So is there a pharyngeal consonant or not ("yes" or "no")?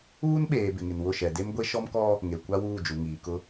no